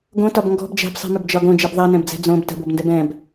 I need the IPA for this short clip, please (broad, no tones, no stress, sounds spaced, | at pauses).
ɡ õ t ɒ b ŋ ɡ ɔ̤ b d͡ʒ ɛ̤ b sˤ i̤ m ʏ b d͡ʒ ɒ ɡ õ d͡ʒ i b ðˤ ɛ n ɛ̃ b d͡z ɛ̤ d͡z õ b t ə̤ b o b n d ɛ b ɛ̃ b